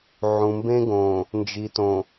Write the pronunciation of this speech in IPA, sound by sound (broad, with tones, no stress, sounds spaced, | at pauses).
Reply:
ʕ ũ˨ m b ẽ˦ ɡ õː˨ | n d͡ʒ i˨ t õ˨